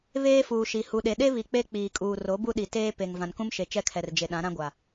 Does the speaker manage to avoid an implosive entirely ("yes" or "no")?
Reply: no